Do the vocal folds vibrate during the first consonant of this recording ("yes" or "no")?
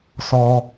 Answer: no